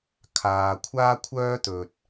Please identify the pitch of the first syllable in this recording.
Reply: low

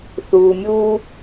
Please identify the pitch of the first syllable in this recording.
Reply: low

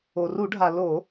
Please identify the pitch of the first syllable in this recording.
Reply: low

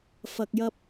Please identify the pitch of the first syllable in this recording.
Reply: low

